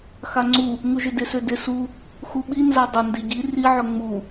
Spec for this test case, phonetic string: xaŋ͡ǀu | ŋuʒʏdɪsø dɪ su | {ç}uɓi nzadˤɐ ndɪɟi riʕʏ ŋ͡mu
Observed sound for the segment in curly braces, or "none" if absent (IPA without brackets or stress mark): x